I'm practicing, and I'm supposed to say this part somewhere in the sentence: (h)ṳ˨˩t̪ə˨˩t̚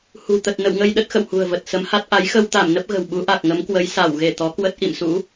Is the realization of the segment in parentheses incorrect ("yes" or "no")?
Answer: no